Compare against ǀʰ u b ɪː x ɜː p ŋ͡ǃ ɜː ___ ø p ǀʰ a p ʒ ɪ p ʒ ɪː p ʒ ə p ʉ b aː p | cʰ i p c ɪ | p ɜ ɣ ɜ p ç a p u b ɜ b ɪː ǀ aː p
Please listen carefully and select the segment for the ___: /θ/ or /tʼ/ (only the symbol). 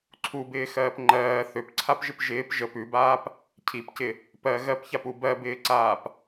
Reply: θ